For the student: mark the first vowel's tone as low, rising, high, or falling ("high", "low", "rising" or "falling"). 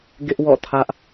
high